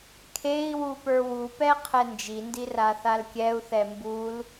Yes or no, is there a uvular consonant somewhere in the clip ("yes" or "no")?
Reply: yes